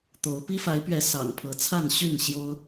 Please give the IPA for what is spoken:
t̪o˨˦ʊ̯ pi˦fa˨˦ɪ̯pɥɛ˨˦ sɑ̰˨˩ŋpʰɤ˨˦ t͡sʰa˥˨nɕy˥˨n ɕjo˦ʊ̯

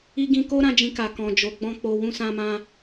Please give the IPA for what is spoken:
i˧ɡĩ˧ko˦ ɾã˦d͡ʒĩ˧ka˨ kɔ̃˨ d͡ʒo˨ɡ͡bɔ̃˧ k͡po˧ wũ˧sã˧mã˧

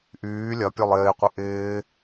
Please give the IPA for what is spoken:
ʔyː lʲɐpʲølˠ ɪːqʷɪ ʔɪː

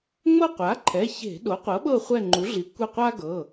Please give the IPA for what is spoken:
ŋ͡mɤ˦˨qʷa˩˥ǃʰɛ˩˧˩ çe̤˧˩˧ ɗo˩˥qʷɤ˩˥ɓɤ˦˨ χʷɛ˦˨ŋ͡ǃu˩˥ɮi˩˥ kʷɛ˦˨qʷa˥ɡɤ˩˧˩

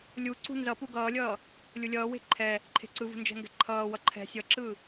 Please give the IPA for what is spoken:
lʲuǀṳ nzʌpu ɡʌːlʲʌː | lʲulʲʌːwe̤ ǃʰɛ | ǃʰe̤ǀɯvṳ nd͡ʒɛ̤ŋɡɛ̤ǃʰʌːwʌ ǃʰɛ̤ sʲʌǁɯ

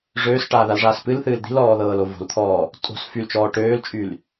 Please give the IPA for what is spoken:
ʐøːsʈaːðalʐaːs pɨlθɨːl d̪i̤lɔːðɤːlo vo̤lt̪ʰɔː | tʼo̤s fylt͡ʃɔː ʈøːlt͡ʃʼyl

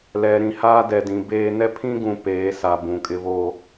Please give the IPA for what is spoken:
lɛ˨ ɾĩ˨haː˦ dɛ˨dĩ˨beː˦ nɛ˦pʰĩ˦ɡũ˨ peː˨˦sa˨ bũ˨kʼɪ˦βoː˦

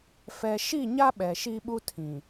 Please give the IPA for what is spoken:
fɛ˨ʃi˦˨ɲa˦ ɓɛ˨ʃi˦ɓu˦ tʰĩ˨

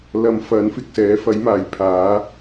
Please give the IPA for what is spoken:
lɐ˧mfɐ˨˥nfɪ˨k̚sɛː˨˥ fɐ˨˥jmaː˨˩jpʰaː˨˥

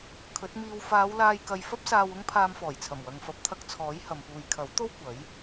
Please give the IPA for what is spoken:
kʰɵ˨˥t̚miː˧w faː˨˧wlaː˧j kɐ˧j fɐ˥p̚saː˧wʊ˥ŋ pʰaː˧mfɔː˨˩jt͡sʰɐ˨˩m wɐ˨ŋfɐ˨˥p̚t̪ʰɐ˧k̚t͡sʰɔː˨˥j hɐ˨mpuː˨j kʰɐ˨˥w t̪o˥w kʷɐ˨˥j

